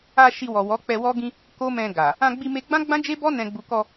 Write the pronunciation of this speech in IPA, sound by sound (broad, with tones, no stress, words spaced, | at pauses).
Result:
a˧ ʃi˧wɔ˨ wɔ˨˦k͡pɛ˧wɔ˦ɡĩ˦ | ko˦mɛ̃˧ ɡa˨ | ã˧ɡ͡bi˧me˧ɡ͡bã˦ ɡ͡bã˦d͡ʒe˦bɔ˦ nɛ̃˧ɡ͡bu˧ kɔ˧